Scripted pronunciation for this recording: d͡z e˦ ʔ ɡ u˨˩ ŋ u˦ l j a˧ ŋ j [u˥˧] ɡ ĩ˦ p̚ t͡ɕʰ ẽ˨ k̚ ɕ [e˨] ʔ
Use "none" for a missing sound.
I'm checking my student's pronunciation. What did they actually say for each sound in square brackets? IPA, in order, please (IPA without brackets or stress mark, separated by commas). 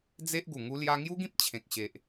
u˦, e˨